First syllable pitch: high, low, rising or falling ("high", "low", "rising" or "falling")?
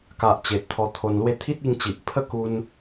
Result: low